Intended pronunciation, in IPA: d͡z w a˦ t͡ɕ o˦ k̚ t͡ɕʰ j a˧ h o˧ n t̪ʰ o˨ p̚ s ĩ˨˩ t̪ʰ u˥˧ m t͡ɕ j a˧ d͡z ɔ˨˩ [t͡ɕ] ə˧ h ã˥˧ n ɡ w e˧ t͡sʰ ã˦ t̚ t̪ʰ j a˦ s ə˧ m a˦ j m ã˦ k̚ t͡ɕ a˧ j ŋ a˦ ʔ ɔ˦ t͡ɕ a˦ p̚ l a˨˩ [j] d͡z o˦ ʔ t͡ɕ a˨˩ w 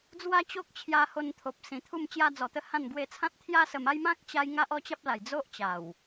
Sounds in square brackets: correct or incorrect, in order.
incorrect: t̪, correct

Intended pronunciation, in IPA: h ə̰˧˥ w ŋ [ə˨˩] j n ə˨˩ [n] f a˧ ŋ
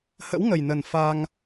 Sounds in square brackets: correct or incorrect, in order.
correct, correct

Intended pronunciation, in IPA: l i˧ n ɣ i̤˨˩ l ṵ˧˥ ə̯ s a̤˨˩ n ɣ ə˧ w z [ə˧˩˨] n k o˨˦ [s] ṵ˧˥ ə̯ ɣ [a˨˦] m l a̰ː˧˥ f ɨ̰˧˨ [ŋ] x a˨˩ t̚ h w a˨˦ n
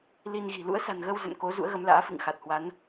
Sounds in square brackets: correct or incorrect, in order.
incorrect: ə̰˧˨, incorrect: z, incorrect: ə˨˦, correct

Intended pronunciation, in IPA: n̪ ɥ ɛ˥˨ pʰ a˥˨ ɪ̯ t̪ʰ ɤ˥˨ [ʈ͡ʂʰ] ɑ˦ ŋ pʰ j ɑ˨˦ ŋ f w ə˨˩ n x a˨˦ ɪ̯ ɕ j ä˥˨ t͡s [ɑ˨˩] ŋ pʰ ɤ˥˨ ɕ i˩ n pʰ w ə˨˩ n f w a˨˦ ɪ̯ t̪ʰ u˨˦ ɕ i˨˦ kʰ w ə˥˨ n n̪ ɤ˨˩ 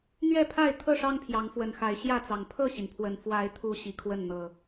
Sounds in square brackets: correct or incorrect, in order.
incorrect: ʂ, correct

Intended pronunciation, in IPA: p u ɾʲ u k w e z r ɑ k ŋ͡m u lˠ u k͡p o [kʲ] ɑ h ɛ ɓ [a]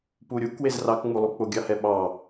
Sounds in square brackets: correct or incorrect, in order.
incorrect: ɡʲ, incorrect: ɑ

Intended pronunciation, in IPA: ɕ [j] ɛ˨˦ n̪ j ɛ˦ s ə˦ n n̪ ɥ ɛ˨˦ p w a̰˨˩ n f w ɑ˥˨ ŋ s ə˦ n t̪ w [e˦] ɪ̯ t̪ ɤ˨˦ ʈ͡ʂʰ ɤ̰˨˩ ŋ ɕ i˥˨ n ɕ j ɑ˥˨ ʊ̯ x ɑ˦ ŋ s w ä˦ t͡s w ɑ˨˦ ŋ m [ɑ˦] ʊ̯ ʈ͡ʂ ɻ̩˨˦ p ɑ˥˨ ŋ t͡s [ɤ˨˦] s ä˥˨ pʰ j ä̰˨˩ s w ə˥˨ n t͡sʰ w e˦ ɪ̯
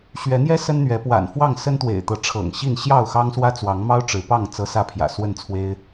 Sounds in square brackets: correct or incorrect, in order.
incorrect: ɥ, incorrect: ḛ˨˩, correct, incorrect: ɤ˦

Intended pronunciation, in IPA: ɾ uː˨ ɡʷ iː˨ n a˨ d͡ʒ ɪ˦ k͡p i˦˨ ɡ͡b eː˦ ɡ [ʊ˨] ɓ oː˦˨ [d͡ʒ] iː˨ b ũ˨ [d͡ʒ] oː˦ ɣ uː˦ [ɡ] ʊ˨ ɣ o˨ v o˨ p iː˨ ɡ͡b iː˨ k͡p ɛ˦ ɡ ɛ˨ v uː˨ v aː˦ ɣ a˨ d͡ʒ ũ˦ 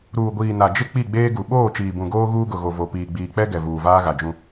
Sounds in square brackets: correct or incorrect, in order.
incorrect: u˨, incorrect: t͡ʃ, incorrect: ɡ, correct

